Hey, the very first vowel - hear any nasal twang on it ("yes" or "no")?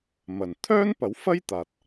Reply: no